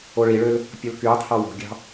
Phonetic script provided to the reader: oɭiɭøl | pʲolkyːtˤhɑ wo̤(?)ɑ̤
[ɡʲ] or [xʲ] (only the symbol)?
ɡʲ